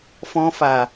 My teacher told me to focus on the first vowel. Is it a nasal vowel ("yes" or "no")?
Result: yes